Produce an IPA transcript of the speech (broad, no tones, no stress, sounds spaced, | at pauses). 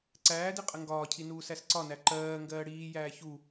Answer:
ǀ æː d i qʼ ə ŋ ɡ ɒː cʰ i n uː s æ s ǀ ɒ n æ ǃ ɜː ŋ ɡ ɜː ɽ iː j æː ç u